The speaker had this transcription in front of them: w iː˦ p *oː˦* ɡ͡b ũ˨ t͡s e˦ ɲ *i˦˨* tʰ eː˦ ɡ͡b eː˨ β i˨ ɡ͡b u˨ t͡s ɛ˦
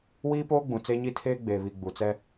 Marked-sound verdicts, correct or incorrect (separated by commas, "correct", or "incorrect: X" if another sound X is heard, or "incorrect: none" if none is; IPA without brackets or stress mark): correct, incorrect: i˦